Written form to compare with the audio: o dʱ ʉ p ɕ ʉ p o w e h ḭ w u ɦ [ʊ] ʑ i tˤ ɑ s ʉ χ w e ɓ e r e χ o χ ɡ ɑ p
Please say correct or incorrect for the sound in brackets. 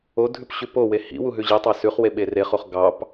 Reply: incorrect